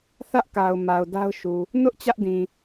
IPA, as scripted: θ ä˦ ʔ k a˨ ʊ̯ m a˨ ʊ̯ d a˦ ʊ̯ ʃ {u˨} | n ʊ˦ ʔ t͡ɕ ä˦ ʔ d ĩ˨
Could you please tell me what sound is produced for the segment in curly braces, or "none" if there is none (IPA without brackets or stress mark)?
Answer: u˨